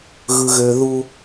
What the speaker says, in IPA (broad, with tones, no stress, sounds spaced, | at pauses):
ɣ ɯ˨ ɣ ø˨ ð u˦